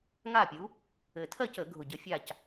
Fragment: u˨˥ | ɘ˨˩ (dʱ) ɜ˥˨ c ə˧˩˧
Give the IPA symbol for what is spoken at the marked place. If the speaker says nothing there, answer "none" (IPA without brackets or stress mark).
tʰ